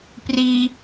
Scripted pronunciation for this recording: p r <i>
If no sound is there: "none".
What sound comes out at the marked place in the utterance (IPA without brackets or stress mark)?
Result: i